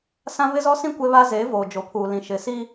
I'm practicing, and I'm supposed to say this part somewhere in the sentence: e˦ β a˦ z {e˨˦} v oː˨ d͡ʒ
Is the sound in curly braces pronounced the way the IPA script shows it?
yes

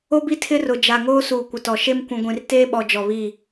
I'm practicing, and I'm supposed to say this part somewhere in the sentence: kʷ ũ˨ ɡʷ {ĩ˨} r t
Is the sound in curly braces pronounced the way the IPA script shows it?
yes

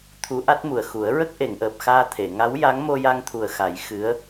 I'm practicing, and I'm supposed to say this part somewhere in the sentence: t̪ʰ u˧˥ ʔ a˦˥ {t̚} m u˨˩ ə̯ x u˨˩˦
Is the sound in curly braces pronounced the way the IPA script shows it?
yes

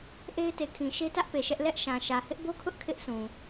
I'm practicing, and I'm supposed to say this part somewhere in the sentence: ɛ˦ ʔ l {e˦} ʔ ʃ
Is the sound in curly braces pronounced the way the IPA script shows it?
no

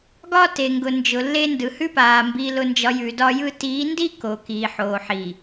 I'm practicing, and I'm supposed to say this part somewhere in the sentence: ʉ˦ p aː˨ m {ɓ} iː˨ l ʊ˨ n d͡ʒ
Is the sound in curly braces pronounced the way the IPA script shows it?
no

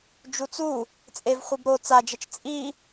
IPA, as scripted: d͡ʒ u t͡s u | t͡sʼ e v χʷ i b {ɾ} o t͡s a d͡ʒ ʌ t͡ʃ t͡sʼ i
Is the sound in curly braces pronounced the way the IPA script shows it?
yes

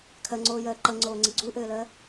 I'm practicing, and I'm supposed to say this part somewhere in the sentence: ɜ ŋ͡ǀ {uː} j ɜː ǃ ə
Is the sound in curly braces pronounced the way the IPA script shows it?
no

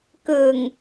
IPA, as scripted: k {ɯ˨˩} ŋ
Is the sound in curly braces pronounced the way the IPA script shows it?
yes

